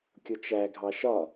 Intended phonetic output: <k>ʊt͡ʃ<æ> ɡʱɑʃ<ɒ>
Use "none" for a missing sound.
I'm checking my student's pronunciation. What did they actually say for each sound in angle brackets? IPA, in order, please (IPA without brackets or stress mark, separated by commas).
kʲ, æ, ɒ